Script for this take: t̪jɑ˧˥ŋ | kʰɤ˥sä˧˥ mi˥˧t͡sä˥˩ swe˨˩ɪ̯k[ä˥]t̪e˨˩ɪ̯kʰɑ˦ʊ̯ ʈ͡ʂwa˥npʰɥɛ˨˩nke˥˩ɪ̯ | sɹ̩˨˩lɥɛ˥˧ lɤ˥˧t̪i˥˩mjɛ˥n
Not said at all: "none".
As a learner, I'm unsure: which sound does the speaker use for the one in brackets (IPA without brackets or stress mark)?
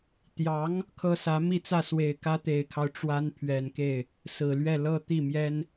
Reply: ä˥